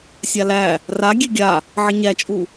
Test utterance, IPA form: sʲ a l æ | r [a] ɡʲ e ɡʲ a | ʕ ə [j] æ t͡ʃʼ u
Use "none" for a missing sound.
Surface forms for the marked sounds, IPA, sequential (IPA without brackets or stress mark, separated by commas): a, ɲ